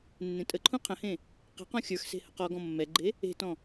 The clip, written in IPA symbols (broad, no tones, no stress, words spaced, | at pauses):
nːẽtʼəǃʰũ qʰə̃hẽ | qe̤qɔ̃ xʲə˞xse̤ həqɔɡɔ̃ mːɛɡ͡ǃe | e̤tɔ̃